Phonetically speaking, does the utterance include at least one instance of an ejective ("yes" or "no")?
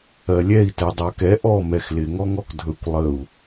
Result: no